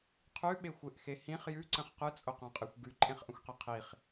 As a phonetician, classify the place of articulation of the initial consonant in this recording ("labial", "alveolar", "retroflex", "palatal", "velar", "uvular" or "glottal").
uvular